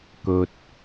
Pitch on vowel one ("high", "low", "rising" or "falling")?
low